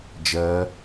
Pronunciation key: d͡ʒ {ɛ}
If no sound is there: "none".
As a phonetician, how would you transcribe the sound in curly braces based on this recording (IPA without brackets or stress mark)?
ɜ